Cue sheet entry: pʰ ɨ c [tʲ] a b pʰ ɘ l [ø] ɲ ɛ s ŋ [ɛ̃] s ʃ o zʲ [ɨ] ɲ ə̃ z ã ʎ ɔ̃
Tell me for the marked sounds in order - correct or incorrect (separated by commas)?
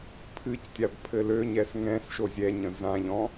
correct, correct, correct, incorrect